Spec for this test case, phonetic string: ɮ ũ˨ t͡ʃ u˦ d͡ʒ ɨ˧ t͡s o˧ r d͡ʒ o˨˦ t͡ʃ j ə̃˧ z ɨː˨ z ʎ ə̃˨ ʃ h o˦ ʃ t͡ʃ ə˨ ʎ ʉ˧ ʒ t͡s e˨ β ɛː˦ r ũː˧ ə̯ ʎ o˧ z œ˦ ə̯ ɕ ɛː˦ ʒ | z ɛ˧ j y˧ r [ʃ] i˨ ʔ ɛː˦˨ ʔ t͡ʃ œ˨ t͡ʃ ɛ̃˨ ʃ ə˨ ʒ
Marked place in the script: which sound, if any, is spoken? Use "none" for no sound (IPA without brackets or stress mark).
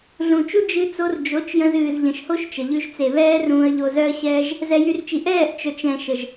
t͡ʃ